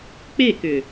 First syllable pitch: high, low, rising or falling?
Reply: falling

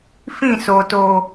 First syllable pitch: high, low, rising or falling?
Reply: falling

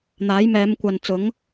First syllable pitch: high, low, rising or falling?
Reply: rising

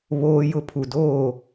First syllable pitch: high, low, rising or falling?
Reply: high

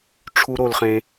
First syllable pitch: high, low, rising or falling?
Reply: high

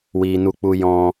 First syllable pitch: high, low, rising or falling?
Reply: low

